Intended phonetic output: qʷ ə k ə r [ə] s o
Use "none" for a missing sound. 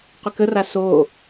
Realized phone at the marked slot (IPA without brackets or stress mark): a